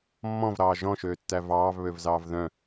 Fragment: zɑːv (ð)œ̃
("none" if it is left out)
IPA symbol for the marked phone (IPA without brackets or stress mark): ð